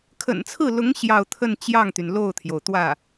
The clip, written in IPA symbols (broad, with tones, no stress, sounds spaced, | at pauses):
kʰ ə̰˨˩ n t͡sʰ ɹ̩˥˩ l ʊ˧˥ ŋ ɕ j ɑ˥˧ ʊ̯ t̪ʰ ə˥˧ n t͡ɕ j ɑ˥˩ ŋ t̪ y˩ n l o˥˩ ʊ̯ t̪ʰ j o˩ ʊ̯ t̪ w ä˥˩